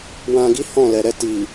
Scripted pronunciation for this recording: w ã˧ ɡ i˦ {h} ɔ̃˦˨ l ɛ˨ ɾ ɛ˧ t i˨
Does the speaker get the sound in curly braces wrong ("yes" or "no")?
no